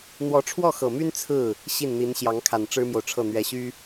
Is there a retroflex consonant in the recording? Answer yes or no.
yes